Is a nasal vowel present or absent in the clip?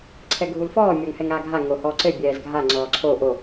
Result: absent